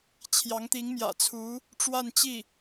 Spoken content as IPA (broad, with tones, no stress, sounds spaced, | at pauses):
t͡ɕʰ j ɑ˧˥ ŋ t̪ i˧˥ ŋ m j ä̰˨˩ t͡sʰ u˧˥ | ʈ͡ʂ w a˥˧ n t͡ɕ i˥˩